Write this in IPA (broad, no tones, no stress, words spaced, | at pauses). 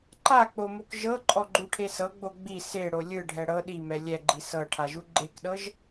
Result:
ǃak͡pomok ʒɤǃʼɔɡ͡ǃuʈʰe sɤɡ͡bo ɡ͡bi seɽo lʲɯɖʱɛ ɽɤ ɗimɛ lʲɛɡ͡ǃi sɤʈʰaʒu ɡ͡ǃekɗɤʒ